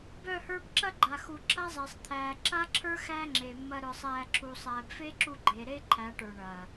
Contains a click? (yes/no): yes